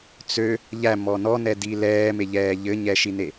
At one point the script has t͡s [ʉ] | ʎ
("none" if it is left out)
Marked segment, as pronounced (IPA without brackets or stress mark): ø